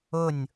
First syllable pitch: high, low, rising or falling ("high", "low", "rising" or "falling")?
falling